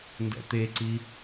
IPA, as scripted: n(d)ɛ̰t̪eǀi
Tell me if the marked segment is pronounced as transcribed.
yes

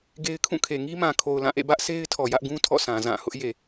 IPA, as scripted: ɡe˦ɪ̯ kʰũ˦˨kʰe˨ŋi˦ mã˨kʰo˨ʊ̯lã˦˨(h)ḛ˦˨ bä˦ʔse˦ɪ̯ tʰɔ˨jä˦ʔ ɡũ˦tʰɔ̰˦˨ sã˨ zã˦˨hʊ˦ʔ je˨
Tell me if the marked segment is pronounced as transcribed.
no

